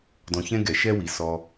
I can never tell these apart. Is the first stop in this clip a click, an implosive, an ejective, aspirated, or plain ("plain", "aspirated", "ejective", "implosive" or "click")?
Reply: plain